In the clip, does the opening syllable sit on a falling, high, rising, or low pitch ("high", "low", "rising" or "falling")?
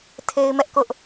high